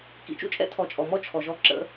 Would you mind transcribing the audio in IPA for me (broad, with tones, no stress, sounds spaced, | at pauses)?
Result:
k ḭ˩˧ t͡ʃ ṵ˥ t͡ʃʼ ɛ̰˥ tʰ ɔ˩˧ t͡ʃʼ ɔ˩ m ɔ˥ t͡ʃʰ ɔ˩ ʒ ɔ˧˥ ǁ ə̰˧